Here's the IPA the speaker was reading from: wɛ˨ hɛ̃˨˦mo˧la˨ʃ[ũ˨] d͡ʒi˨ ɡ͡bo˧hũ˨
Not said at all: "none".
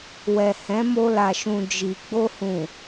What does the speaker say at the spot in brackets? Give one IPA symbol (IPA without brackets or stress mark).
ũ˨